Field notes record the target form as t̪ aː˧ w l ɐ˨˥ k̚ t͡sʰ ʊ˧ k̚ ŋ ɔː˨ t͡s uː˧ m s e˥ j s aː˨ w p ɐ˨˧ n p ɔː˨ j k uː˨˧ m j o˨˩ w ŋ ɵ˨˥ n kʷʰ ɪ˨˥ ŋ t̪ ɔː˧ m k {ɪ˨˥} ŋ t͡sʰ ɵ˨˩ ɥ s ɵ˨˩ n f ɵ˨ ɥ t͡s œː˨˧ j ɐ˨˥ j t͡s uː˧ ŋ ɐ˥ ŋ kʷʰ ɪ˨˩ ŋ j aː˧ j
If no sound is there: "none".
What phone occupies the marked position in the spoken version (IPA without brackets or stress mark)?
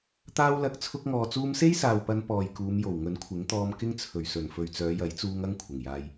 ɪ˥